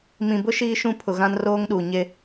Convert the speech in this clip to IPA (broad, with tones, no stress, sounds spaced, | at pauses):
m ĩ˨ b ʊ˦ ʃ iː˦ ʃ ũ˦ pʰ ʊ˨ ɣ ã˦ n r oː˦ ŋ ɗ u˨ ɲ e˦